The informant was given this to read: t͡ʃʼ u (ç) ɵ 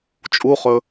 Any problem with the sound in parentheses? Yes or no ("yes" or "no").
yes